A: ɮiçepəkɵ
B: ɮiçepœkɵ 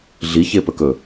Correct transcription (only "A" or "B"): A